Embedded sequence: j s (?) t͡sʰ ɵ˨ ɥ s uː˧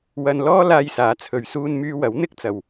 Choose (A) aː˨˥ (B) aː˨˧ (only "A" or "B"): A